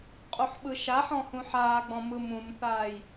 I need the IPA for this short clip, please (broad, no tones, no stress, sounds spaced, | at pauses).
qʼ u ħ ɓ ɯ ʃ a ħ ɔ̃ h ũ ħ aː ɡ͡b ɔ̃ m ɯ m ũ m θ aː j